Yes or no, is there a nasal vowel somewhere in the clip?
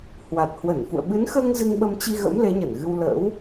no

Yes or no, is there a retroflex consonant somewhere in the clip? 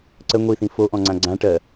yes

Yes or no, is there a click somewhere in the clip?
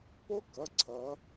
yes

